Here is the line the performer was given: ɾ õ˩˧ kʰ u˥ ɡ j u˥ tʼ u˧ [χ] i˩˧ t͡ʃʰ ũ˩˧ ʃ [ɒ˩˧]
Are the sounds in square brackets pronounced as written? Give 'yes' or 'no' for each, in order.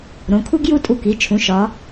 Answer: no, yes

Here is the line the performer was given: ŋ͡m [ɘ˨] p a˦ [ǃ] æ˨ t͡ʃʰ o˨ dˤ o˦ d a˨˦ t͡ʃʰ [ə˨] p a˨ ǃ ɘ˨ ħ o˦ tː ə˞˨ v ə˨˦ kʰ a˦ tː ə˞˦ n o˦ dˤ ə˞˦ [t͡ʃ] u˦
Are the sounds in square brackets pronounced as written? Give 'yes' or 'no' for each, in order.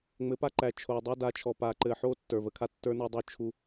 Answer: no, yes, no, no

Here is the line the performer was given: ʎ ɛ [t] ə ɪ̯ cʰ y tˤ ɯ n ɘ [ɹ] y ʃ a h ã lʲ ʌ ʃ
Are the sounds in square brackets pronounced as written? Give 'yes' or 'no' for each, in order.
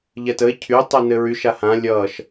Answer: yes, yes

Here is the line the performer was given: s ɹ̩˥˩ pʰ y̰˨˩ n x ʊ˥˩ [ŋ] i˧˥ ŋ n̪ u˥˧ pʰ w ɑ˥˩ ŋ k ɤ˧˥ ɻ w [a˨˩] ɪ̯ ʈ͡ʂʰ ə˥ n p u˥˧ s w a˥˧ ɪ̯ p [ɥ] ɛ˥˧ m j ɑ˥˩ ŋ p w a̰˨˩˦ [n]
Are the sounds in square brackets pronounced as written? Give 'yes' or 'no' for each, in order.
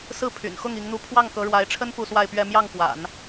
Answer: yes, no, yes, yes

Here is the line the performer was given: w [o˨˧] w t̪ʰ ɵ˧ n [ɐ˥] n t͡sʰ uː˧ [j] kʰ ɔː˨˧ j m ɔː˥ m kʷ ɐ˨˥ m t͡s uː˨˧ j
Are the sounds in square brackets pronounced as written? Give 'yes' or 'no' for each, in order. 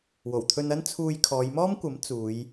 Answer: no, yes, yes

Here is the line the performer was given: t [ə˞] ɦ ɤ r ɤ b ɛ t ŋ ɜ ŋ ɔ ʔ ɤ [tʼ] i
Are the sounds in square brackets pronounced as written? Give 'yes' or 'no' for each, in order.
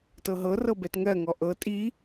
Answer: no, yes

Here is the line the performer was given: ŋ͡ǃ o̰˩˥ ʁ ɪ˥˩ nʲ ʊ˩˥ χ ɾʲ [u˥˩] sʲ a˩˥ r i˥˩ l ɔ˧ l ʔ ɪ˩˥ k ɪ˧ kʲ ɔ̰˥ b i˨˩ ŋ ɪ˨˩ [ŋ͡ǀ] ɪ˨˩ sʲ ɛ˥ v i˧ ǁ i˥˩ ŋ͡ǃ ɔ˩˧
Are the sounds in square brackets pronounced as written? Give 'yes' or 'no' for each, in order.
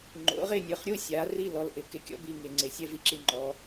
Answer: yes, yes

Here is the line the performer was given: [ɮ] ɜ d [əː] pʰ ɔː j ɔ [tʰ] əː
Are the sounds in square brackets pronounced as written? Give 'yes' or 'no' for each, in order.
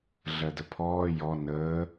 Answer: yes, no, no

